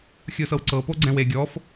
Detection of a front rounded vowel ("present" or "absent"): absent